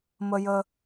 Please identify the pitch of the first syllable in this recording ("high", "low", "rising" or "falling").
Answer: high